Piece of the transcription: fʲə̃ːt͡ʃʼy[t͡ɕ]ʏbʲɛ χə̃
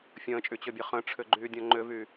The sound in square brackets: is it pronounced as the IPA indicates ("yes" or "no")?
yes